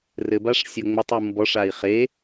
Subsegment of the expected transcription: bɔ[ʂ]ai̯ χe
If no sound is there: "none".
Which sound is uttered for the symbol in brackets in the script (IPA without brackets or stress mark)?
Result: ʂ